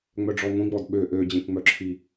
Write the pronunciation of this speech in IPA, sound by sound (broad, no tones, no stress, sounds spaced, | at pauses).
ŋ͡m œ ɖ͡ʐ ɔ ŋʷ ĩ ɡ͡b ɔ d ɓ ø ʔ ø d͡ʑ ẽ k ŋ͡m œ ǁʰ i